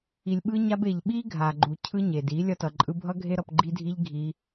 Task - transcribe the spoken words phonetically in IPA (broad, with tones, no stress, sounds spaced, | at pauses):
i˨ lʲ ɓ ɯ˧ ɲ a˧ b e˨ ʎ ɓ i˦ ɡʱ a˨ ɡ͡ǃ u˨ cʰ ɯ˦ ɲ e˨ d i˨˦ lʲ ʌ˧ t ʌ˨ ǃʼ ɯ˧ bʱ ʌ˦ ɡʱ e˦ ɾ ʌ˧ p ɡ͡ǃ i˦ dʱ i˦ ʎ ɡʱ i˧